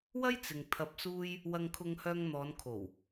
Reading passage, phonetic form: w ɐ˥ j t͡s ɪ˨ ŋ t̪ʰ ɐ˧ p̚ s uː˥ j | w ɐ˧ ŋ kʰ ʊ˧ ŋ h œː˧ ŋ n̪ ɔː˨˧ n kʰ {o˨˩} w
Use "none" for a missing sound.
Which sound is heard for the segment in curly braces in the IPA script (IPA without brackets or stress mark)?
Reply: o˨˩